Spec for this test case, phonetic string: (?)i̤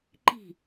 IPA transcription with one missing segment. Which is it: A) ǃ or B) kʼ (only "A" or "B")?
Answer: A